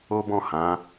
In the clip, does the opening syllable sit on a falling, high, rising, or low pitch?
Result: high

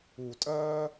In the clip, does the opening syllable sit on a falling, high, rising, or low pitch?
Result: low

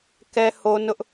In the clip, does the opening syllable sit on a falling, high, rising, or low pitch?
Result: high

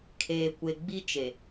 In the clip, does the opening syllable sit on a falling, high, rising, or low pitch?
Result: low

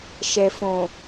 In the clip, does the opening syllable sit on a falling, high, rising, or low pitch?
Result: low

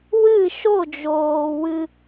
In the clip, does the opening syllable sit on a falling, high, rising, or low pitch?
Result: falling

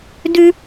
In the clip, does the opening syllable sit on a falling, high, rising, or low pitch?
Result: high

